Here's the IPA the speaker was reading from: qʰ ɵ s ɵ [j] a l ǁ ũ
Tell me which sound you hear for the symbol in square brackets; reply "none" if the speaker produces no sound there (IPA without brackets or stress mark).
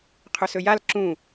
j